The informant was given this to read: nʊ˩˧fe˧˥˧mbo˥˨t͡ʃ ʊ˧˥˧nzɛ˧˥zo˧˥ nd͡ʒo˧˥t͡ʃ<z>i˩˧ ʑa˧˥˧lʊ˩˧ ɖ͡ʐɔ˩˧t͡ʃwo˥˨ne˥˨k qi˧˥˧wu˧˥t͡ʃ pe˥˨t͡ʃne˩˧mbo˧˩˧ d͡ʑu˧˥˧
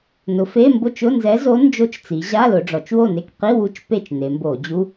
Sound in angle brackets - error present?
yes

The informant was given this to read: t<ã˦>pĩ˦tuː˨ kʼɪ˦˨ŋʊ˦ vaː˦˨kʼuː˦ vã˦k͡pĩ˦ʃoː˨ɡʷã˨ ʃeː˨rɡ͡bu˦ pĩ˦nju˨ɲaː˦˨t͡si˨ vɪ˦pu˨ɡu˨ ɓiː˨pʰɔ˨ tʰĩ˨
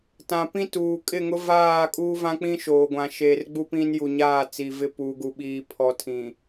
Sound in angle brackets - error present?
yes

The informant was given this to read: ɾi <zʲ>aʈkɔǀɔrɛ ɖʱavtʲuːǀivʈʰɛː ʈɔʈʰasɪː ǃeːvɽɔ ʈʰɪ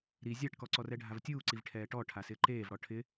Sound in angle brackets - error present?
no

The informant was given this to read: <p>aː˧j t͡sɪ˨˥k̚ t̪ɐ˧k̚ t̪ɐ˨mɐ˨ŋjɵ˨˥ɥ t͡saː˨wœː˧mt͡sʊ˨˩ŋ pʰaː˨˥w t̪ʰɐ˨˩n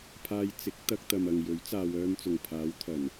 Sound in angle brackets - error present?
yes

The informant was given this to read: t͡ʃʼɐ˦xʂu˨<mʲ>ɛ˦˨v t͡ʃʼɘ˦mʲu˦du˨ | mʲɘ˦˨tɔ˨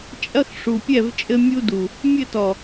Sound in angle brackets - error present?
yes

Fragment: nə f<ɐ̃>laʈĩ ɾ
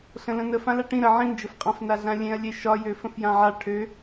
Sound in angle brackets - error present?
yes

